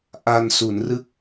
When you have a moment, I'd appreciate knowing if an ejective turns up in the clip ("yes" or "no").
no